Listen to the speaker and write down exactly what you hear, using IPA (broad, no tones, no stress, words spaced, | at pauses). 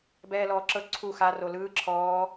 bɛːlɔːǁɤ ǀʰu xa rolɯː ǁʰɔː